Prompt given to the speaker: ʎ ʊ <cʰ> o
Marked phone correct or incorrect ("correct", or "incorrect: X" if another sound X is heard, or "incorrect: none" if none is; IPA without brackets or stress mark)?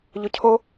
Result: correct